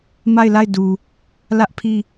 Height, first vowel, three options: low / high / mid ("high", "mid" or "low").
low